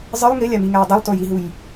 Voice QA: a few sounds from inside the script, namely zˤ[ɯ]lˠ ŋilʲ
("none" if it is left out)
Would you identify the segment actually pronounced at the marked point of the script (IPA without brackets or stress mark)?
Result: ɯ